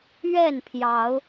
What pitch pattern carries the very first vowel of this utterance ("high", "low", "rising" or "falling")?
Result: falling